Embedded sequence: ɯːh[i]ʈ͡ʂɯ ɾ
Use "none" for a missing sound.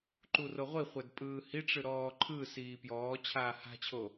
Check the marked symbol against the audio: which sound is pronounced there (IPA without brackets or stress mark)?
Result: i